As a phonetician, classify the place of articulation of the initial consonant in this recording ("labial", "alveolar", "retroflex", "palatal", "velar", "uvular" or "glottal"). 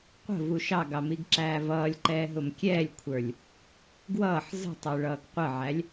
uvular